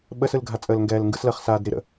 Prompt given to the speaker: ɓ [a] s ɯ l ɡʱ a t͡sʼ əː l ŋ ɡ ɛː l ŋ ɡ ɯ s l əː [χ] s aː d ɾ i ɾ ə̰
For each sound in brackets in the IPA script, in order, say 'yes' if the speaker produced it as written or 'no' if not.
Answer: no, yes

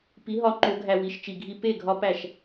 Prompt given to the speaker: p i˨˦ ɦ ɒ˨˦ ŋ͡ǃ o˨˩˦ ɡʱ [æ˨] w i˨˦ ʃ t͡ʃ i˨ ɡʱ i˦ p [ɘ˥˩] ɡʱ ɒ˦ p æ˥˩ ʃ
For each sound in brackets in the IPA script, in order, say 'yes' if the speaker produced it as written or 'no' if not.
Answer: yes, no

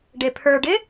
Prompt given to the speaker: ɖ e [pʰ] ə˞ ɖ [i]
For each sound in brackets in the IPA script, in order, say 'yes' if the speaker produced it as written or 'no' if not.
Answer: yes, no

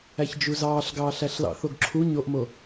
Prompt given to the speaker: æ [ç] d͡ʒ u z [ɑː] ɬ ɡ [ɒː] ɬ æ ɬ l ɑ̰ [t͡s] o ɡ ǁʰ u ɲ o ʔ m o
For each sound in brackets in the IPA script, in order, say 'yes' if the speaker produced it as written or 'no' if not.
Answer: yes, yes, no, no

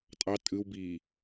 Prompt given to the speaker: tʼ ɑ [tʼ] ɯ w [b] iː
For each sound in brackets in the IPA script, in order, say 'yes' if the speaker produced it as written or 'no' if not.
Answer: yes, yes

